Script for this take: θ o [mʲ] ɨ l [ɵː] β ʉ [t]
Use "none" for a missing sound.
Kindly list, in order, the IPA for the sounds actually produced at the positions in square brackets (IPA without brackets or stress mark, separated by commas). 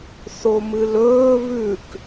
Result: m, ɵː, k